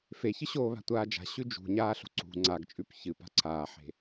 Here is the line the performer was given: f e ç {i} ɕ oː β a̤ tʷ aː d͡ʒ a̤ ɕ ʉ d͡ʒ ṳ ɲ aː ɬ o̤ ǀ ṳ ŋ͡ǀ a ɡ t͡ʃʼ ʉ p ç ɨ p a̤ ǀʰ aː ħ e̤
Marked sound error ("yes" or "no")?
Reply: yes